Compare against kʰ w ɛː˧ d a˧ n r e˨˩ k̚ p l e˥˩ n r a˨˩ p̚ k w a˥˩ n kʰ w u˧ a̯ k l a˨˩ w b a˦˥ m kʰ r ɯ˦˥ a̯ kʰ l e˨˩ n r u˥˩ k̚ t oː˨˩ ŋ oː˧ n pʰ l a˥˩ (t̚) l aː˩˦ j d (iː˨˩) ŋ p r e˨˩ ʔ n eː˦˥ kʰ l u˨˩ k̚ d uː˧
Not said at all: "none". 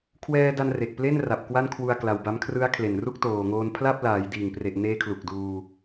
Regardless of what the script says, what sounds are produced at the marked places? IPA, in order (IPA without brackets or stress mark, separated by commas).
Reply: p̚, iː˨˩